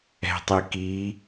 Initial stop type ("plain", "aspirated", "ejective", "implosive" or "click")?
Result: plain